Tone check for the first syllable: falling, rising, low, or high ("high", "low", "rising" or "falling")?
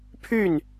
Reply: falling